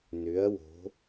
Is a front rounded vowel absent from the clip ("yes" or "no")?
no